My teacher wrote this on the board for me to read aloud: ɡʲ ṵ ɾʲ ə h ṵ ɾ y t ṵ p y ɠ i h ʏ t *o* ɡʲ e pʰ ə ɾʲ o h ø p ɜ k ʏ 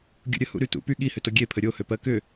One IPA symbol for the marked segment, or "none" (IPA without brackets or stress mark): o